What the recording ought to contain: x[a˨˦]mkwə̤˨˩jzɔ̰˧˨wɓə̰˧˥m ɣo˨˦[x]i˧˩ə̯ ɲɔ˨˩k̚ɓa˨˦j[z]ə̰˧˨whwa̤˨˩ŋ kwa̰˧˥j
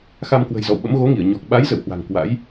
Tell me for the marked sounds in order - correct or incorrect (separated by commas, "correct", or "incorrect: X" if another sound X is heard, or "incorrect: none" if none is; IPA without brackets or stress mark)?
incorrect: a˧, incorrect: ŋ, correct